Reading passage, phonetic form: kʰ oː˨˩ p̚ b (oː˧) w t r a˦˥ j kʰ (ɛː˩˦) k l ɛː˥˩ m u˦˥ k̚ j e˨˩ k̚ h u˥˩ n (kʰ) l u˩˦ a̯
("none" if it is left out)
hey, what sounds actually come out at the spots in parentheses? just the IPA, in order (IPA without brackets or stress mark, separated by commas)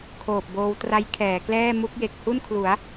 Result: oː˧, ɛː˩˦, kʰ